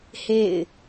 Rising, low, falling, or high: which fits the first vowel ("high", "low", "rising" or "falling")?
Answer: falling